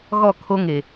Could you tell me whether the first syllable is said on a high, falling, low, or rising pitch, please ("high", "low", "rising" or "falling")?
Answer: falling